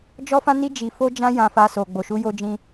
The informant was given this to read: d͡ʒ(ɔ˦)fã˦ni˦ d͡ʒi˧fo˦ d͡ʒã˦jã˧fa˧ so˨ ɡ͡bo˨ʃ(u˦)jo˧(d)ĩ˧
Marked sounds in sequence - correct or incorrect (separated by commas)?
correct, incorrect, incorrect